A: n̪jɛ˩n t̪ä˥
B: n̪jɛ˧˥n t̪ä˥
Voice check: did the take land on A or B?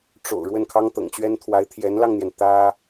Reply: A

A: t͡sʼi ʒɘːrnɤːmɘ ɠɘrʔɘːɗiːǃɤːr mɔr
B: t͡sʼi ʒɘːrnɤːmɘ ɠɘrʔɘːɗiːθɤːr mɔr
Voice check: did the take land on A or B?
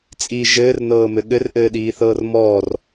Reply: B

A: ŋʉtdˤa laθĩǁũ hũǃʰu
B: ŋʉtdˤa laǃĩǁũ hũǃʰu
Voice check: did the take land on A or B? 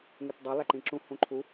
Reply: B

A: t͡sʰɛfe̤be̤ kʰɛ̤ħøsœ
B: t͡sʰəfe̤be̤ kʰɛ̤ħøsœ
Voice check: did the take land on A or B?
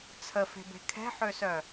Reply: B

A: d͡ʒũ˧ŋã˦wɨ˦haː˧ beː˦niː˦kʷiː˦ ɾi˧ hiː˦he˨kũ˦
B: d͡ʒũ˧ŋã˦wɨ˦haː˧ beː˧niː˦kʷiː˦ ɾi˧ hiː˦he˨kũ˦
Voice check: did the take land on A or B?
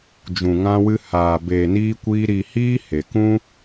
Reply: B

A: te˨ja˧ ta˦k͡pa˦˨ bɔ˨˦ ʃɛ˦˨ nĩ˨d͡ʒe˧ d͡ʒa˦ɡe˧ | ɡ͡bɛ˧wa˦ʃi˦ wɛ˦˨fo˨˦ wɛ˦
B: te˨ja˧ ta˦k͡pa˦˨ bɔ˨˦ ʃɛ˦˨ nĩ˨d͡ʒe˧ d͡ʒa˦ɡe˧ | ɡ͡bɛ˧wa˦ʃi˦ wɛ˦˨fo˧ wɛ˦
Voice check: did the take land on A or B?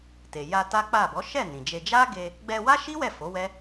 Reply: A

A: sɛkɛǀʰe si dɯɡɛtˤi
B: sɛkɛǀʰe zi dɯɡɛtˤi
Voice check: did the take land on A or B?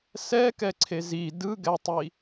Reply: B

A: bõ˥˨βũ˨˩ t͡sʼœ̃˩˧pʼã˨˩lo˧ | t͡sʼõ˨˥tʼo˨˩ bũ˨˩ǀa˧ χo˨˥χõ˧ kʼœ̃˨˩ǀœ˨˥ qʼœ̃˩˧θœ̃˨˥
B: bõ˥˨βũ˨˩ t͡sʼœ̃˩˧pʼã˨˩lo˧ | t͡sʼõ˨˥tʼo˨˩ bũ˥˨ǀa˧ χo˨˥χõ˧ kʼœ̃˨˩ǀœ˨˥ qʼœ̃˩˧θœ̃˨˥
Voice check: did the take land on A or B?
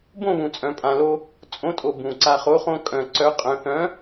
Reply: A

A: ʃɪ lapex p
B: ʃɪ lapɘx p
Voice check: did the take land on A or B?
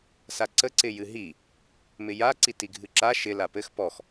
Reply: B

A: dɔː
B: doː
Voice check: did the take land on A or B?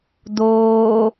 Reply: B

